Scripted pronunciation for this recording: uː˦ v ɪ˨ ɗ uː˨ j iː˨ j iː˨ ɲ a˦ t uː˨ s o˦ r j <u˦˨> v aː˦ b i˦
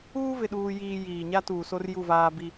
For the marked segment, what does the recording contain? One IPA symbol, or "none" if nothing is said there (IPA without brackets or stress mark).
u˦˨